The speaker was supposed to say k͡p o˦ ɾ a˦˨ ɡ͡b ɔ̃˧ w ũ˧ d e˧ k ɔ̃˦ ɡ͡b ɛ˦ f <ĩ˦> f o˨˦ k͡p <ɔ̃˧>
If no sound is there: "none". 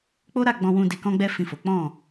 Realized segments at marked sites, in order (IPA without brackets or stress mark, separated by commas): ĩ˦˨, ɔ̃˦˨